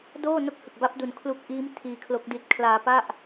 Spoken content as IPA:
doː˥˩no˥˩k̚hɯ˨˩k̚ba˦˥p̚ du˧n kʰlu˦˥k̚ʔiː˦˥m tʰiː˧kʰlo˦˥k̚di˦˥t̚ kʰlaː˧pa˥˩ʔ

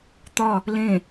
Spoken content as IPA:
t̪ɒ | lẽ

